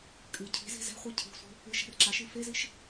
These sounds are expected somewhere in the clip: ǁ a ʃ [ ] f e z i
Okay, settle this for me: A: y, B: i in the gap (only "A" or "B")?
B